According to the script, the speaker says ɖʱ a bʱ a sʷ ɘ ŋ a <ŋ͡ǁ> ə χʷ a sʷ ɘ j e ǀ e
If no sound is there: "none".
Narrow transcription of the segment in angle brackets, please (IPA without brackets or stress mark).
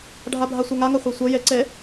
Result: ŋ